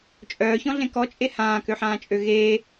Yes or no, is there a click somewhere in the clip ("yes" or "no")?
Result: no